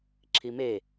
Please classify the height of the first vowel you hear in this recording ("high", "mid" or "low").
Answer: high